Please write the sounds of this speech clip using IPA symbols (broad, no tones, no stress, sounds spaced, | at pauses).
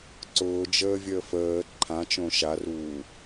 ǀ ʊː d͡ʒ əː vʲ əː f əː ǃʰ ã t͡ʃ õ ʃ a r uː